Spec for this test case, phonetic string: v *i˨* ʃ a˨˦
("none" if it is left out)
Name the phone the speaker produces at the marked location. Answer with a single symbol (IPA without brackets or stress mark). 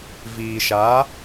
iː˨